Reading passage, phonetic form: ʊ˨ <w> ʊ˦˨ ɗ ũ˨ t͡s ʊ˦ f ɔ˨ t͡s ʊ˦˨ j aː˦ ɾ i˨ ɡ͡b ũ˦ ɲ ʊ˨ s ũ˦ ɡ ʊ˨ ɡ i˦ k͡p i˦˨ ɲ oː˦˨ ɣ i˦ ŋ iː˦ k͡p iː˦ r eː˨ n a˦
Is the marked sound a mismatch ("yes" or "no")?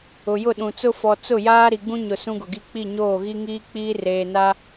yes